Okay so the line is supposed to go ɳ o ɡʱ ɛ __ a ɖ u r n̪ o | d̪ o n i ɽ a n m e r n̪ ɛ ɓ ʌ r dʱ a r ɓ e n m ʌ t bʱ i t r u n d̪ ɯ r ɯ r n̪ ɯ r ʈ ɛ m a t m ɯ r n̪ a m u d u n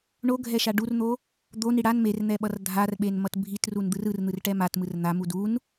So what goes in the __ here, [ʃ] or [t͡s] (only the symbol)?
ʃ